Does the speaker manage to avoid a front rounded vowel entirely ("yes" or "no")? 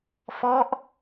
yes